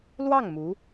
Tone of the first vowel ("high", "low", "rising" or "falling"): falling